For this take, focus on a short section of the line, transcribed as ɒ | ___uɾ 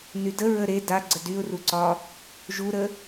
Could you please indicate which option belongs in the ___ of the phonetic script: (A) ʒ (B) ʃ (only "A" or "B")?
A